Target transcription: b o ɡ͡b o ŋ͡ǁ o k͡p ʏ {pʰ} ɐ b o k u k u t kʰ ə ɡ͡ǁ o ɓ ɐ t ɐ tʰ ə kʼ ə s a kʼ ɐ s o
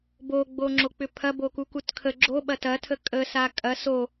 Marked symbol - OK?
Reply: yes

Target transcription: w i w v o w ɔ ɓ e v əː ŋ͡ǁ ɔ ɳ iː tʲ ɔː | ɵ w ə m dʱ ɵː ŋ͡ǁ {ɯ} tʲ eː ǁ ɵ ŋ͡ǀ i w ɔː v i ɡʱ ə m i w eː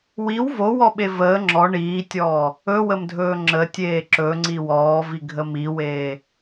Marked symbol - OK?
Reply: no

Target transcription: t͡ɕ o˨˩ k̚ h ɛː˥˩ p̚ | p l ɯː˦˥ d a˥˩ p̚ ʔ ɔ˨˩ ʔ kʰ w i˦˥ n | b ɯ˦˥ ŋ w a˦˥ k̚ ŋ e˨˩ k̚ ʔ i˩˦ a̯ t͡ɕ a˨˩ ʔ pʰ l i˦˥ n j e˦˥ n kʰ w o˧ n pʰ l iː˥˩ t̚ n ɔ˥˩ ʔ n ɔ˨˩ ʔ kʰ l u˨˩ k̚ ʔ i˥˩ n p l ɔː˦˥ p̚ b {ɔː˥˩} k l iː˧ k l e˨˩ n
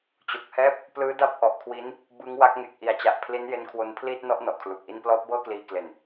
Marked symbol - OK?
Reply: no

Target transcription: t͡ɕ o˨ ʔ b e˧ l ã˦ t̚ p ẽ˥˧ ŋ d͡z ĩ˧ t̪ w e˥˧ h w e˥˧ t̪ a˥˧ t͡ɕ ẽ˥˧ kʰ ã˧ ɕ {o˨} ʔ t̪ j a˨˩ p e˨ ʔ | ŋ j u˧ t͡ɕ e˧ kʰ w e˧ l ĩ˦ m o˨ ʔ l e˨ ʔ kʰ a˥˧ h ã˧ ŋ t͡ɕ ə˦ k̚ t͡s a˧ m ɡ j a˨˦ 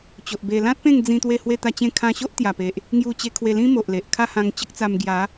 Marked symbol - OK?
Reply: no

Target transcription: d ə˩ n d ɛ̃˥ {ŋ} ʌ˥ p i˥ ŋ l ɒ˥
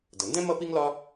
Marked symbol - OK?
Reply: no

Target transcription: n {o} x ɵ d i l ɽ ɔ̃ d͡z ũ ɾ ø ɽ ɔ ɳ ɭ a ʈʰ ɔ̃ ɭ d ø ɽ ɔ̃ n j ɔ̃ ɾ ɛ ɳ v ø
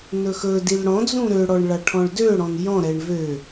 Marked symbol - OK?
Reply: no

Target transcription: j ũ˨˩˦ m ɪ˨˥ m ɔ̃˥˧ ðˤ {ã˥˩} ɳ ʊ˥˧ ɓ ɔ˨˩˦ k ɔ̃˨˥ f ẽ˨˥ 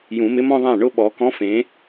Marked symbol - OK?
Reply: yes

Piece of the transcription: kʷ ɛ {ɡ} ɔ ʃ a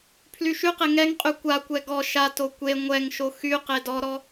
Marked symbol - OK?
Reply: yes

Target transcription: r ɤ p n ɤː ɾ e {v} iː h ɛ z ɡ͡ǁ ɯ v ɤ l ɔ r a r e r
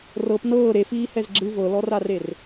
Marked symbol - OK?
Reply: no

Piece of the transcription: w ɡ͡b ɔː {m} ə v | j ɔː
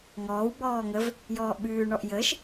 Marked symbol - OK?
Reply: no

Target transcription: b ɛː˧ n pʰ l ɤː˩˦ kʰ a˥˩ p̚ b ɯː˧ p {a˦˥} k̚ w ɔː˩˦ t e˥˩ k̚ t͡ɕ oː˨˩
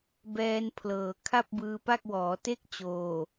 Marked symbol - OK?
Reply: no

